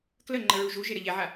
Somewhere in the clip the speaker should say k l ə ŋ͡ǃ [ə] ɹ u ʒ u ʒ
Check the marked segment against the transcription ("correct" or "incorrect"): correct